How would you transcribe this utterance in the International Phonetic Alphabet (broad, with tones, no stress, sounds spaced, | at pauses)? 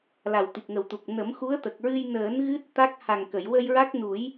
l a˨˩ w t̪ i˨˩ k̚ ŋ ə˨˩ w t̪ u˨˩ k̚ n ə˨˩˦ m x u˧˥ ə̯ t̪ ə˨˩ k̚ ɹ ɨ˧ j n əː˨˩˦ n ɣ ɨ˦˥ t̚ t̪ a˦˥ k̚ h a˨˩ ŋ k ə˨˩˨ j w ə˧ j ɹ a˦˥ k̚ n u˨˩˦ j